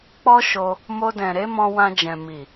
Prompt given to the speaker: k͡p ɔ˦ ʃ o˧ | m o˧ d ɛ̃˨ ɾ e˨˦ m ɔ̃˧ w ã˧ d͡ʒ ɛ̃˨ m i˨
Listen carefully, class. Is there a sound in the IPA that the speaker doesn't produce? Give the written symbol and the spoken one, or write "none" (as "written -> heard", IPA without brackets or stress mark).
none